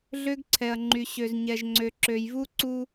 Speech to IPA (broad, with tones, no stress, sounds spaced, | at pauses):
ɮ ø˦ ɡ ǀʰ ɛ˨ ɐ̯ ŋ͡ǃ y˨ ɕ ø˨ z ɲ ɛ˨ ʒ ŋ͡ǀ ø˨ ǁ ø˨ j v u˦ ǀ u˦